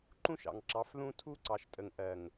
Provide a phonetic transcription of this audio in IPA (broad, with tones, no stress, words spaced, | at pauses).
ǃũ˦ʃɑ̰˨ŋ ǁɑ˨˦fðũ˦ tʰu˦ǀɑ˨ʃtʼə˨ŋʔɜ˨ŋ